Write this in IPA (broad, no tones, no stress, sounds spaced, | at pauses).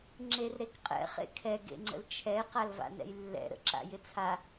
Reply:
ŋ͡ǁ e r ɾ e k qʼ ɛ̰ χ ḛ kʰ ɛ ɡ ḛ ŋ͡ǀ ə̰ l t͡ʃʰ ɛ q a l v a̰ n ɛ̰ j lː ɛ̰ ɾ ə̰ ǁ a̰ j ɪ t͡sʰ a